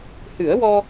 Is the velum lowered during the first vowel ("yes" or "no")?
no